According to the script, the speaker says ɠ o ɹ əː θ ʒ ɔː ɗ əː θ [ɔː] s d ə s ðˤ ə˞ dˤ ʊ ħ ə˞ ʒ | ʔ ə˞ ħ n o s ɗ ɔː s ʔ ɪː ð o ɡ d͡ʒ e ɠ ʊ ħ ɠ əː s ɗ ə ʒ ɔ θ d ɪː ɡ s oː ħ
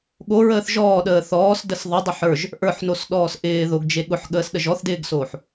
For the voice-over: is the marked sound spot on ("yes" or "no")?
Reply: yes